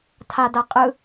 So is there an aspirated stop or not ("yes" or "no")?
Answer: yes